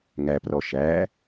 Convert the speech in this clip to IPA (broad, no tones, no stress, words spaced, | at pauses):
ŋæprɔ ʃæ